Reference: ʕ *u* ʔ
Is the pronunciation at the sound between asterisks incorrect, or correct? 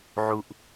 correct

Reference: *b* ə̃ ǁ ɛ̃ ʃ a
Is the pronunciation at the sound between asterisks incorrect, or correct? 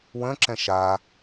incorrect: w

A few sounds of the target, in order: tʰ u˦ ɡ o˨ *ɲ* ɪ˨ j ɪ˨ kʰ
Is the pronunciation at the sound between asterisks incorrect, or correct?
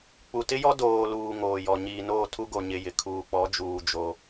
correct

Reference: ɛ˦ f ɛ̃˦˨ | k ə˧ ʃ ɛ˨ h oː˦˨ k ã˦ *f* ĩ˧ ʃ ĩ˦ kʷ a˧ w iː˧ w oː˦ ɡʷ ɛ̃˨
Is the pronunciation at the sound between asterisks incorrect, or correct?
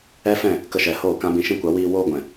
incorrect: b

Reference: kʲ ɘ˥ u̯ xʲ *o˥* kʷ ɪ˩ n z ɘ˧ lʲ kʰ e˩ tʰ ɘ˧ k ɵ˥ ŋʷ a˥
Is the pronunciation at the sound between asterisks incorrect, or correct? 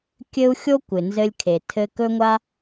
correct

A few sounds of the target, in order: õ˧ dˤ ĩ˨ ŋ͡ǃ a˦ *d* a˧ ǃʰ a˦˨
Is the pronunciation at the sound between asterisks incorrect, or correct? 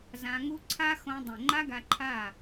incorrect: ɡ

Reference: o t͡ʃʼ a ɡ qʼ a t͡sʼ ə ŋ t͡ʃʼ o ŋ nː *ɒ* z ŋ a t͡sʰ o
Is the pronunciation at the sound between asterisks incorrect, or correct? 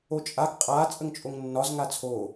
correct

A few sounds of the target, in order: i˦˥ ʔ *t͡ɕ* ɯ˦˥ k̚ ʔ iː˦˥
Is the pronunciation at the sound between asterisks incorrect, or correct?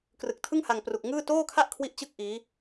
correct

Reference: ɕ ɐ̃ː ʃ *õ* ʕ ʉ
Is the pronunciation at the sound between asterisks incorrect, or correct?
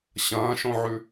correct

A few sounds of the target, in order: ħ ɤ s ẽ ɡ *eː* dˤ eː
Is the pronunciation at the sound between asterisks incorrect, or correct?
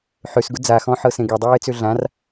incorrect: e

